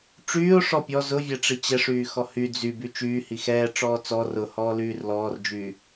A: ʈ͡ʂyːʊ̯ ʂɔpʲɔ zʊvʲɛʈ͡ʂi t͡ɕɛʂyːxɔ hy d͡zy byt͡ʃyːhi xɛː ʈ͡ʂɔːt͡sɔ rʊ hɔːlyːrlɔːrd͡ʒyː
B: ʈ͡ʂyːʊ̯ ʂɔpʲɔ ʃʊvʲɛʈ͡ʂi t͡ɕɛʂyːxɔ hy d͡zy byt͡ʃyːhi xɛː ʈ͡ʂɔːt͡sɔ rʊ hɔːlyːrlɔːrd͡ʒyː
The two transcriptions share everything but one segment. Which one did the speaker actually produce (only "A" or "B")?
A